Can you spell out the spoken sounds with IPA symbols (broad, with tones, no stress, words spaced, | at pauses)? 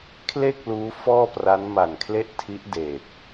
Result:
kʰle˥˩k̚ luː˦˥fɔː˥˩ pra˦˥n ma˨˩nkʰle˥˩ʔtʰi˦˥ʔ deː˨˩k̚